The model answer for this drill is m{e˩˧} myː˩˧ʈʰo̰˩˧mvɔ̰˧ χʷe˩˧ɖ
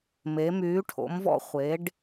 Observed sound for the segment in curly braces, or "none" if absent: e˩˧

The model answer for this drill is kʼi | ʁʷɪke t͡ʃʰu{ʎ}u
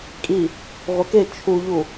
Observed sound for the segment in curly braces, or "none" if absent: ʎ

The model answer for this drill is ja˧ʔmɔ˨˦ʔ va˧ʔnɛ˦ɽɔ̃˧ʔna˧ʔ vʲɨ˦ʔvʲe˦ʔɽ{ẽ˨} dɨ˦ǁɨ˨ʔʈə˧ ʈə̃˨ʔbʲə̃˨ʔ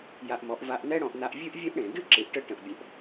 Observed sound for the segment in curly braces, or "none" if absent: ẽ˨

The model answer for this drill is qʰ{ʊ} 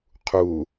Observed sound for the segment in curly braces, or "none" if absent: u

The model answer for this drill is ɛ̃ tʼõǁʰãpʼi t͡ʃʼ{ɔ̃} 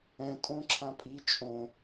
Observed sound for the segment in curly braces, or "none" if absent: õ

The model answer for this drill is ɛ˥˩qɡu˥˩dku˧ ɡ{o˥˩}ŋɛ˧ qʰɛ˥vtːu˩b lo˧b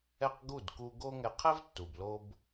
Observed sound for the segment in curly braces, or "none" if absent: o˥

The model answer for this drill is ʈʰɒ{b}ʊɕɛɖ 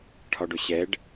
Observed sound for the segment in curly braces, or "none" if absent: ɖ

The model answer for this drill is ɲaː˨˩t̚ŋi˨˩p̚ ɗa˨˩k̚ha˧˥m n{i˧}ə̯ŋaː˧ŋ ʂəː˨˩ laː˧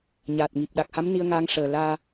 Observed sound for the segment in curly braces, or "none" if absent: i˧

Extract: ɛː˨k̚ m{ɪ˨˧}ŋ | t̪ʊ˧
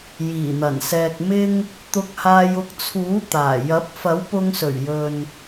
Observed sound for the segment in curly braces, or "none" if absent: ɪ˧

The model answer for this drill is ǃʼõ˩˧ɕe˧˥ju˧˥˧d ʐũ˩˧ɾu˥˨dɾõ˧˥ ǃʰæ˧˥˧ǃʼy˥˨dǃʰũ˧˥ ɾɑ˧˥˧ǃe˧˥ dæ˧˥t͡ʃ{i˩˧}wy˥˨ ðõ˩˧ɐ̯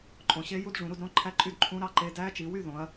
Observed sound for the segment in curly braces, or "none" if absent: i˩˧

